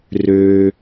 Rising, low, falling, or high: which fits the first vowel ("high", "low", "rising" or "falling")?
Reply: low